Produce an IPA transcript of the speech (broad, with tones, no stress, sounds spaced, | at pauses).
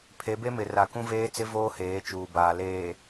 pʰ e˨˦ b e˦ m ɪ˨ r a˨ k ũ˦ v eː˦ t͡s ɪ˦ v oː˦ h eː˨˦ t͡ʃ uː˨ b aː˨ l eː˨